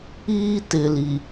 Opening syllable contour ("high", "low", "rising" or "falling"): high